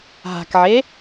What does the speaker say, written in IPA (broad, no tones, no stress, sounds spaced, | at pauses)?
ɦ a̤ k ʕ e